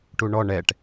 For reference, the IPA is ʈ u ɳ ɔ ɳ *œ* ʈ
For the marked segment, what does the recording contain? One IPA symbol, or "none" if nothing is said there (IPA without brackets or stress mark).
ɛ